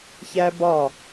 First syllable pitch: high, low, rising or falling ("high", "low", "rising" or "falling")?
high